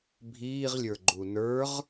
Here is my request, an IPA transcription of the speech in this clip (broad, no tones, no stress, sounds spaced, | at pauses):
bʱ iː ʁ lʲ ə˞ ɡ͡ǃ u n ə˞ ʁ